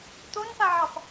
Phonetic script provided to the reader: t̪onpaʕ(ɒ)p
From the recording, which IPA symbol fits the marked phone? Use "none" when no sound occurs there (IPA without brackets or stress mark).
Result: ɑ